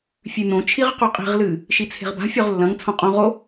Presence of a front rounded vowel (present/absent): absent